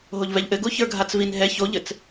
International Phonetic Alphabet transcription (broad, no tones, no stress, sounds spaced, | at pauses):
ɦ o ʎ v ɛ ʎ ʔ ɘ ɡ o ç ə˞ ɡʱ a t͡s v i n ɦ ɛ ç o ʎ ɘ t͡s